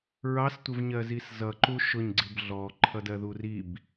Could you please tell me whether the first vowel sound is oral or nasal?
oral